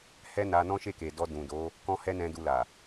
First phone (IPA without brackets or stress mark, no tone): h